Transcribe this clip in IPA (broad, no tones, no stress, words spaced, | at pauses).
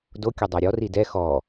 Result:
dokʲʊ dˤaɾʲɔri dɛ xɔ